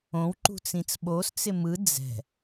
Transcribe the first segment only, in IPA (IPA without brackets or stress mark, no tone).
õ